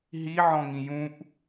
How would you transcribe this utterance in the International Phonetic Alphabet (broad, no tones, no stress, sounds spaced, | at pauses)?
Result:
ɦ i ʕ ɔ̃ ŋ ĩ j ũ ʔ